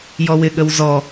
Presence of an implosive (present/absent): present